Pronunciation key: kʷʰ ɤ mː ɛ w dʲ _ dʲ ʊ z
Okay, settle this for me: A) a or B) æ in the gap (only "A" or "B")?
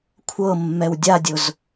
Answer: A